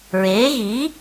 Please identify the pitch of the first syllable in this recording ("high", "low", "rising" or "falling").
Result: rising